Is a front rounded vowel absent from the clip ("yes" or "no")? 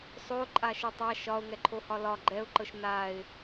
yes